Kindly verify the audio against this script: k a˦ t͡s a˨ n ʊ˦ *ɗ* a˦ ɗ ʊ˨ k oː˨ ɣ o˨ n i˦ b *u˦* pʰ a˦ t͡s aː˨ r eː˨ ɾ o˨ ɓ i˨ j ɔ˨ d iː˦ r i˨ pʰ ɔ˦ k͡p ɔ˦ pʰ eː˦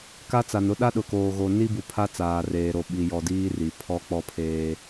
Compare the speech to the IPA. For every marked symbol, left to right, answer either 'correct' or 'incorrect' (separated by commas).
correct, incorrect